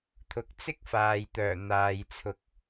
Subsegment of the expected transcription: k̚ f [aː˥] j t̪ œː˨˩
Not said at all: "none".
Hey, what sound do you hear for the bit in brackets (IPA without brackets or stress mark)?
aː˨